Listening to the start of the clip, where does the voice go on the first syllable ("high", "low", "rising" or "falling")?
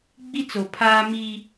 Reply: high